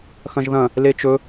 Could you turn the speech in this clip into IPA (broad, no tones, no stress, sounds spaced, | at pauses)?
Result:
x ɐ̃ ʒ ð ɐ̃ | l e t͡ʃ ɵ